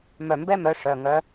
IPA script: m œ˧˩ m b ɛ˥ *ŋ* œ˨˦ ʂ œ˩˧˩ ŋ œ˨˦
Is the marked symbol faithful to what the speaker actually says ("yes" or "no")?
no